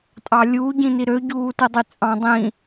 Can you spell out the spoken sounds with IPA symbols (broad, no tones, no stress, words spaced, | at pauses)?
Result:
tʼɑlʲuː ɟĩniɾø ɟuːtɯdˤyt͡sʼɑ̃ dˤĩ